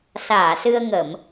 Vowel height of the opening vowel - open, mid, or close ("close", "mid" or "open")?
open